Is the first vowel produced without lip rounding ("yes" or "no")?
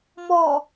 no